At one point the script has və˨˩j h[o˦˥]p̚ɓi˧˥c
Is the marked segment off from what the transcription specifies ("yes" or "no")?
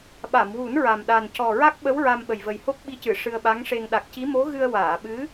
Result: no